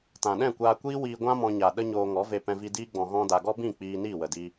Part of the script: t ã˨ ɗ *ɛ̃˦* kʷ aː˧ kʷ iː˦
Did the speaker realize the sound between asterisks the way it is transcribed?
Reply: no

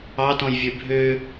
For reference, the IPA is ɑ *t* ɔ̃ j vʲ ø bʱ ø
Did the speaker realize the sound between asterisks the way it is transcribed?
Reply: yes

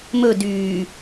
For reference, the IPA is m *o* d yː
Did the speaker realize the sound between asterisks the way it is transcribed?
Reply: no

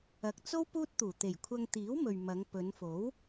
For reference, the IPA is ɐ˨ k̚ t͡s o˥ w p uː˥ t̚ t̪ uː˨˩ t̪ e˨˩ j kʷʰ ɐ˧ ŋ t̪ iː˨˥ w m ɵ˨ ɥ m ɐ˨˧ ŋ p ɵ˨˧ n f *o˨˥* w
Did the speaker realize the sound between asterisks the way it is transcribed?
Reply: yes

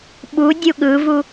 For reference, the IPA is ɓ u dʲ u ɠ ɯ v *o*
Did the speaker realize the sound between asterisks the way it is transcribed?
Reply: no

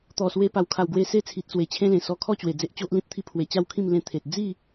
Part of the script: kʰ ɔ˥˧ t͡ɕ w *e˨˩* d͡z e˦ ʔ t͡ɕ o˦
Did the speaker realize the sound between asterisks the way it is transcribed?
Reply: yes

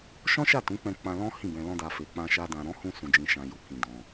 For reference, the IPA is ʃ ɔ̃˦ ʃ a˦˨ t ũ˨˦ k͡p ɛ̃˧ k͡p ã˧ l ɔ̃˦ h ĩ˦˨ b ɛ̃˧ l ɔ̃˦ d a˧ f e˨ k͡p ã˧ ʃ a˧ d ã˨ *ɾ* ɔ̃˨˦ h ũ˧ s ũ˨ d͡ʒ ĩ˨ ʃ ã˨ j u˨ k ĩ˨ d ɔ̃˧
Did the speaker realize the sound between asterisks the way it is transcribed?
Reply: yes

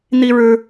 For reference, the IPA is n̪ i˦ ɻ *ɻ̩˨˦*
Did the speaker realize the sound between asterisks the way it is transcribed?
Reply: no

